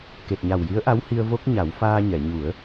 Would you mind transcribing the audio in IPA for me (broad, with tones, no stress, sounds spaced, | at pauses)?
k e˨˩ t̚ ɲ a˨˩ w j i˧˥ ə̯ ʔ a˧˥ w h i˧ ə̯ v o˦˥ k̚ ɲ a˨˩˦ w f aː˧ ɲ ɛ˨˩˨ ɲ u˨˩˦ ə̯